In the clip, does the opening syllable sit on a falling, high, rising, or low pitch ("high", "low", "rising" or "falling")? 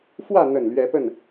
falling